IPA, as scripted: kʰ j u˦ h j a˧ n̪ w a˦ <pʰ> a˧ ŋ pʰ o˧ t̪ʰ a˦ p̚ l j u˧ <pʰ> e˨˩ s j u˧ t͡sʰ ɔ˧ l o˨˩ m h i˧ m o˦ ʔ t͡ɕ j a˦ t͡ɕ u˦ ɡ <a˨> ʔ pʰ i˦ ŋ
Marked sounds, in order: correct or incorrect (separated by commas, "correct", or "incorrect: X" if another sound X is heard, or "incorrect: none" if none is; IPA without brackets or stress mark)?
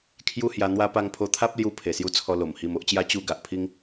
incorrect: p, correct, correct